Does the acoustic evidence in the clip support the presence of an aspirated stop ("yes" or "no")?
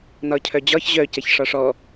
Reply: yes